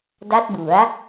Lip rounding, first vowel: unrounded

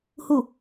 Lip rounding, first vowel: rounded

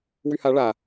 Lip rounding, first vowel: rounded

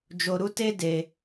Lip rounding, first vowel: rounded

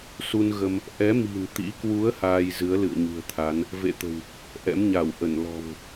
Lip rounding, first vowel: rounded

